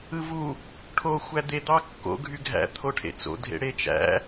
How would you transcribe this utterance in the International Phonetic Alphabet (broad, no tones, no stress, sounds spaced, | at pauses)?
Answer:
ɯ v u | ʈʰ o xʷ æ d̪ e d̪ ɑ kː o̰ ɡʱ y ɡʱ æ̰ t̪ʰ o ʈʰ ḛ t͡s o̰ dʱ ḛ ɽ e t͡ʃ æ̰